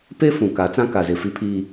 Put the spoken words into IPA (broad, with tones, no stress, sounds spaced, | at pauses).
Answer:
p e˦ f ũ˨ k a˨˦ t͡s ã˦ k a˨ z ɪ˨ f i˦ pʰ iː˦